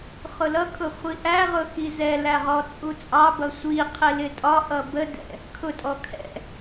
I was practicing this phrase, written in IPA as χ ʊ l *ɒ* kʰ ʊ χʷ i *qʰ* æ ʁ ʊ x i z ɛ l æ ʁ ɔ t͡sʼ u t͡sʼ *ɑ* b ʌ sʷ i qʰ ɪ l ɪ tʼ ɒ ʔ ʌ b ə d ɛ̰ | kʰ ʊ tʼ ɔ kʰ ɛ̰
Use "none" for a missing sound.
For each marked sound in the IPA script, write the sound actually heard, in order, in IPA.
ʌ, ʔ, ɑ

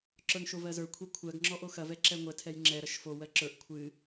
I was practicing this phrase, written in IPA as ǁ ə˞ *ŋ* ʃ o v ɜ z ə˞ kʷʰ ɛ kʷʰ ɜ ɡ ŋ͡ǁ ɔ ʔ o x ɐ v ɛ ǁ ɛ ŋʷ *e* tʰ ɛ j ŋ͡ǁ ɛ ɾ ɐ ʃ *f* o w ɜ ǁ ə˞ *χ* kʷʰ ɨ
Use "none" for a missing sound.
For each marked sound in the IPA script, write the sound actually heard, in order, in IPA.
ŋ, ɛ, f, ʔ

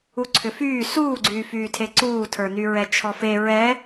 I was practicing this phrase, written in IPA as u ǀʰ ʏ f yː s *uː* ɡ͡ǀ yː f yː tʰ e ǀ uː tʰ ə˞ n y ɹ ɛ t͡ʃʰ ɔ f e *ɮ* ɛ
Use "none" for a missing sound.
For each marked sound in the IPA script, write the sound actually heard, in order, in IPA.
uː, ɹ

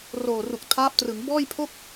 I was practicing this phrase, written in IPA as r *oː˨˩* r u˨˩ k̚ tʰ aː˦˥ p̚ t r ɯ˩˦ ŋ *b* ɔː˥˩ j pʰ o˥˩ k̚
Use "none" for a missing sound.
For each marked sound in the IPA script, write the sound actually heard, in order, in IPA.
oː˨˩, b

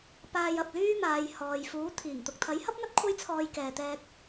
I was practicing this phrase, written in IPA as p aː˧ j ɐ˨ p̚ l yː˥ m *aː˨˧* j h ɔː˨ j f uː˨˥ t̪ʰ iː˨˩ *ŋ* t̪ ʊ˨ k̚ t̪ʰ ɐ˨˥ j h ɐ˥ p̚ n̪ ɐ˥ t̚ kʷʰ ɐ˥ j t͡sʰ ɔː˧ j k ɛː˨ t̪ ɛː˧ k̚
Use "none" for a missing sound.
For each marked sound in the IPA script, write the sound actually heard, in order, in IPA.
aː˨˧, ŋ

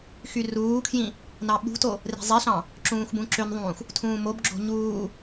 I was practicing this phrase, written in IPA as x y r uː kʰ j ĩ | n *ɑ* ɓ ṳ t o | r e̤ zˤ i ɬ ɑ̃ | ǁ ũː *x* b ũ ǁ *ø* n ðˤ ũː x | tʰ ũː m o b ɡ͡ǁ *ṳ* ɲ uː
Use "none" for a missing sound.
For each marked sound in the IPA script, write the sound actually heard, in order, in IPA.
ɑ, x, ø, o̤

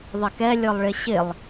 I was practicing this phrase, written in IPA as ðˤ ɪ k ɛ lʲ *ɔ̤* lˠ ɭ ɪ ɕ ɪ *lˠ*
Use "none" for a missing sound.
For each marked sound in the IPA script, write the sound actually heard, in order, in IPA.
ɔ, lˠ

